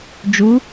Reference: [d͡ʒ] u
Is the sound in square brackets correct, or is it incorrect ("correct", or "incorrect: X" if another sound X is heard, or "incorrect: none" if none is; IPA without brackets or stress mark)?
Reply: correct